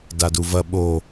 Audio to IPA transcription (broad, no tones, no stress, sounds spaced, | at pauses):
d a d u v ɐ ɓ o